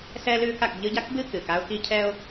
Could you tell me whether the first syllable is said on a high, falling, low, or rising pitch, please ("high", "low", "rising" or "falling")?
high